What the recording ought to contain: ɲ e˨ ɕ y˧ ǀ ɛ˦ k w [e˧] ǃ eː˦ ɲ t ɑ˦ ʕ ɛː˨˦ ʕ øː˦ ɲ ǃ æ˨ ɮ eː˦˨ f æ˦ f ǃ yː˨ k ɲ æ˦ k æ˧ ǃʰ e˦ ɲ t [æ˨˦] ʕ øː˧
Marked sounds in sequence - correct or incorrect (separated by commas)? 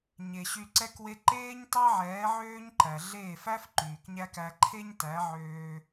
incorrect, correct